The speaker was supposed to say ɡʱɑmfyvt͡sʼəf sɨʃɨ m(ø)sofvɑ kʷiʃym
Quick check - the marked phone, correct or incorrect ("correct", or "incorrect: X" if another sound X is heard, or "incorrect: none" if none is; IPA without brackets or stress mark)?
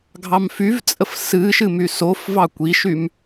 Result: incorrect: y